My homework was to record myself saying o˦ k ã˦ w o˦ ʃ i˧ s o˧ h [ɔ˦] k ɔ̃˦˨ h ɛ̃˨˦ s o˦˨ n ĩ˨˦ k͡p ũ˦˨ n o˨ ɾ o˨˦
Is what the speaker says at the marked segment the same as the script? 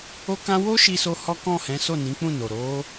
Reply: yes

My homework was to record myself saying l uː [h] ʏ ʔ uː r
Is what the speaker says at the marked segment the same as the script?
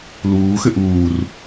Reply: no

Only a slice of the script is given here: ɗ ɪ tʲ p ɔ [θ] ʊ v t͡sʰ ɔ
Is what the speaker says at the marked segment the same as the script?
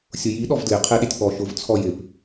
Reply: no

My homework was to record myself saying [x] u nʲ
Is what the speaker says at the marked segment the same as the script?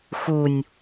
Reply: yes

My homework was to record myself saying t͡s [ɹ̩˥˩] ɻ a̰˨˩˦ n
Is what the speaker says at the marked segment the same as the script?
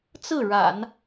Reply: yes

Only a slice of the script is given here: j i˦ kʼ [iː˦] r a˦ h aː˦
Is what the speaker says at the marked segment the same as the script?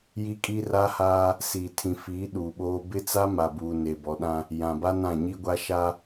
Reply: no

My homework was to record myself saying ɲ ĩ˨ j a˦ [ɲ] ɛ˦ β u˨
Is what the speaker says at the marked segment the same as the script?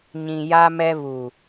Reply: no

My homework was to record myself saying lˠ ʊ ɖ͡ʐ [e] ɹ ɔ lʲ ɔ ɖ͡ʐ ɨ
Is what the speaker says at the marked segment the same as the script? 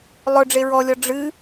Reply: yes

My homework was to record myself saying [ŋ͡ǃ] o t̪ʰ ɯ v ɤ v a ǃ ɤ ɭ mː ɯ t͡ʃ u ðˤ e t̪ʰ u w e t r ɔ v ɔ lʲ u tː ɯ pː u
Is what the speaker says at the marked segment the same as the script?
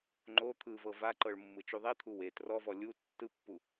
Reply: yes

